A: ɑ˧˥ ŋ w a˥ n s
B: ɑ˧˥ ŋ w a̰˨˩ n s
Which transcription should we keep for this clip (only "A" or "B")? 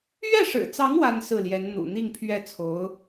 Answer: A